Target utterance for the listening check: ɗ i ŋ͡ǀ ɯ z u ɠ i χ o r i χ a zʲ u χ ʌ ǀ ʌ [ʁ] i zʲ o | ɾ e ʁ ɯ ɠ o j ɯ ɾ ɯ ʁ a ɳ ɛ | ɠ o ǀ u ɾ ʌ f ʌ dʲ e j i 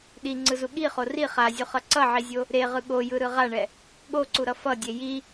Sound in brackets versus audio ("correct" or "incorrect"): incorrect